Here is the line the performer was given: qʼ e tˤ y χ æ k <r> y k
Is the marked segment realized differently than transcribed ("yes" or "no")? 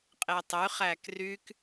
no